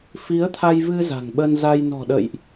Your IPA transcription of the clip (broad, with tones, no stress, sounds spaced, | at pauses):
f i˨˦ ə̯ t̪ʰ a˧ j v ɨ˧ z a̤˨˩ ŋ ɓ ə˧ n z a˧ j n ɔ̤˨˩ ɗ ə̰˧˨ j ʔ